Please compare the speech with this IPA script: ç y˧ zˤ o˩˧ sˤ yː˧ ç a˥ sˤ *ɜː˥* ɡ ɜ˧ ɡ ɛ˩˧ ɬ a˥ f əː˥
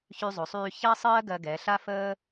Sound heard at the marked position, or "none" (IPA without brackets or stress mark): ɜː˥